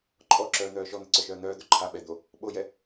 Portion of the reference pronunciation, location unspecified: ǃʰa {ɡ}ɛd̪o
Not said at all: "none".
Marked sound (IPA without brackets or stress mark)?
ɓ